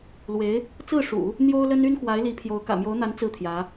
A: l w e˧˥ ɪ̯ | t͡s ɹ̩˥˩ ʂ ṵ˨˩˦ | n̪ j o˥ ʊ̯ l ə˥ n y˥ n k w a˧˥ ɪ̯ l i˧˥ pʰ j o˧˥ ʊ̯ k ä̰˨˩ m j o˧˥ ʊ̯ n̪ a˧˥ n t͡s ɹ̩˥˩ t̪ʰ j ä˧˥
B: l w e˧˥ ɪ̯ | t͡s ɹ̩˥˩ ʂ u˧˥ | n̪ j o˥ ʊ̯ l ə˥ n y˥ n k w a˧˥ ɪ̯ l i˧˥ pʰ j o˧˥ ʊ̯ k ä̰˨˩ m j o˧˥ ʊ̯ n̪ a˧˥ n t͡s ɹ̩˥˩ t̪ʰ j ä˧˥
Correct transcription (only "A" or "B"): A